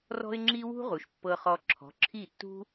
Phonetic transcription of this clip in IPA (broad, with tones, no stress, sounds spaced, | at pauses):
r ɔ̤˥ ɪ̯ ŋ͡ǁ i˥ w ṳ˥ ʁ u˩ ʃ pː ɤ˧ χ ɔ˧ ǁʰ ɔ̤˩˥ ǁʰ i˥˩ tː ṳ˥